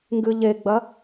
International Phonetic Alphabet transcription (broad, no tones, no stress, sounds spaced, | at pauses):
ŋ ɡ ɨ ʎ e ɡ͡b ɐ